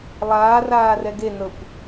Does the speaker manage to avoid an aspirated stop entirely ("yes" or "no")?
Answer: yes